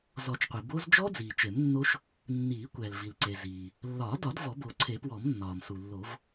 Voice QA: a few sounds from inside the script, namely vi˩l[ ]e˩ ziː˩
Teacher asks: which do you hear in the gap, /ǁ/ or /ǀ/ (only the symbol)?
ǀ